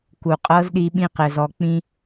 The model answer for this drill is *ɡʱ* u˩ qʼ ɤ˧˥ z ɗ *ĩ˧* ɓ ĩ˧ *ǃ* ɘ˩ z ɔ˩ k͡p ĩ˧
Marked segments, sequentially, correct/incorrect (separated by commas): incorrect, incorrect, incorrect